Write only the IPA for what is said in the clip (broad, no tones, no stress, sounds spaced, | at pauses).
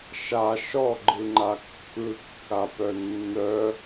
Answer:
ʃ a ʃ ɔ ɡ͡ǃ ɯ ŋ͡ǃ a kː ɯ kː a p œ nː œ